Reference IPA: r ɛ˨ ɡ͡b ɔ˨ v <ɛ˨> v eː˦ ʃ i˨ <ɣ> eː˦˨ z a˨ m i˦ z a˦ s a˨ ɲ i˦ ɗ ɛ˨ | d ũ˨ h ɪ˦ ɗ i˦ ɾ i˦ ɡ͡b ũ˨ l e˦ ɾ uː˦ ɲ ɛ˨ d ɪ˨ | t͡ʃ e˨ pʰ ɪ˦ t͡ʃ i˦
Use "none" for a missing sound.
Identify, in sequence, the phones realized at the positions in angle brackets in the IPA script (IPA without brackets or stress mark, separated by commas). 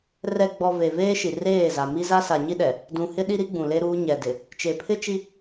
e˨, r